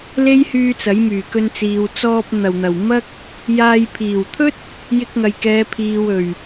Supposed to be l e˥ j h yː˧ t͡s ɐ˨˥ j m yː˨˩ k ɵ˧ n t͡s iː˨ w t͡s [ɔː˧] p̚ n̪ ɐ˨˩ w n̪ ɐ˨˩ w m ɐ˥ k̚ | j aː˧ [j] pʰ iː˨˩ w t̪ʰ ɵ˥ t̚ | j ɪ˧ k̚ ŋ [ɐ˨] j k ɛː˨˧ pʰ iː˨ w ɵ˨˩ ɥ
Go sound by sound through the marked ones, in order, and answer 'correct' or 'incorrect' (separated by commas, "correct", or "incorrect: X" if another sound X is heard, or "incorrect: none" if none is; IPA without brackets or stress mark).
correct, correct, correct